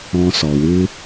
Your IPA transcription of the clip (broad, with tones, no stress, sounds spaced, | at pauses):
ɔ̃˧ s ɔ˨ w ɨ˦